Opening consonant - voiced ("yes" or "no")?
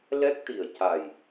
yes